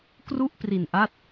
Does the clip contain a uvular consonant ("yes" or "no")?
no